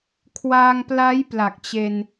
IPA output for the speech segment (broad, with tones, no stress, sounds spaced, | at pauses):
kʰ w a˧ ŋ p l a˦˥ j p l a˨˩ k̚ t͡ɕ e˧ n